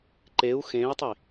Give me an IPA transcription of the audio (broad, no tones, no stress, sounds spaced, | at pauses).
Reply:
ǃ e u̯ x ẽ i̯ tˤ i